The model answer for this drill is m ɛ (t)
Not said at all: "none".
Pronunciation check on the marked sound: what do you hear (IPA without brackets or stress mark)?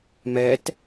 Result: t